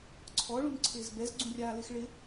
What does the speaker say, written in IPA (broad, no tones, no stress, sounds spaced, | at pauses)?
ǀʰ ɔ ɭ ũ n ǀʰ ɪː z b ɛ z ɡ͡ǀ ũ rʲ aː l ɪ x ɭ ɪ